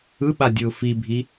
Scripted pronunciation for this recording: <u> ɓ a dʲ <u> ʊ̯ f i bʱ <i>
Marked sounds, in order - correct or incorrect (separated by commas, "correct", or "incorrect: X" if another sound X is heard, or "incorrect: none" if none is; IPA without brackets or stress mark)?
incorrect: ɯ, incorrect: ɯ, correct